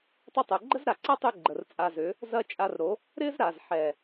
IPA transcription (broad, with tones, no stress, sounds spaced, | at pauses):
tˤ ʏ˧ tˤ o˨ ɡ͡ǃ ə˦ z ɾ a˨ ǀ ɐ˦ tˤ ø˧ ɡ͡ǃ ə˨ r t͡sʼ a˧ z ʏ˨˦ | z ɐ˦ t͡ʃʼ a˧ r ɾ o˨˦ | ɾ ɪ˦ z ɾ a˨ z ħ ɛ˨